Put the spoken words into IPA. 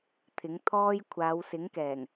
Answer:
t̪ʰ ɪ˨˥ ŋ t̪ʰ ɔː˥ j kʷʰ aː˨˧ w s ɪ˨˥ ŋ k ɛː˨˩ ŋ

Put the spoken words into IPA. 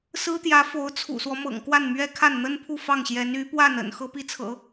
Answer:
s ɹ̩˥ t̪ j ä˧˥ f o˧˥ ʊ̯ t͡sʰ ṵ˨˩ s w ɔ˦ m ɤ̰˨˩ ŋ k w a˥˩ n m ɥ ɛ˥ kʰ a˥˩ n n̪ ə˥ n pʰ u˥˧ f ɑ˥˩ ŋ ɕ j ɛ˧˥ n y˧˥ p w a˥˩ n ə̰˨˩ n x ɤ˥ p i˥˩ t͡sʰ ɤ̰˨˩˦

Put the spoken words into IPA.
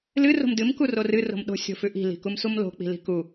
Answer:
l ɨ r o̤ m d ɨ m k u r o r ɨ r o̤ m ɗ o̤ sʲ o̤ f ʉ ʔ i̤ l i̤ k u m s u m l o̤ k͡p i̤ l i̤ k u

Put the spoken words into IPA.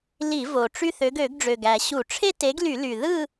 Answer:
l i˧˩˧ v o˨˩ ʈ͡ʂ y˥˧ θ ø˨˥ ɡ ø˧˩˧ ɡ ɖ͡ʐ ø˨˩ ɡ æ˧˩˧ ɕ u˧˩˧ ʈ͡ʂʰ e˥˧ t e˨˥ ɡ l y˧˩˧ l y˨˩ ð ɯ˥˧

